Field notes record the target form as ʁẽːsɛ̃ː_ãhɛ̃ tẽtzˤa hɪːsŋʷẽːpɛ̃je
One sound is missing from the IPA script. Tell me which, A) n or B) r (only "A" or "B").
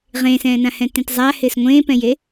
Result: A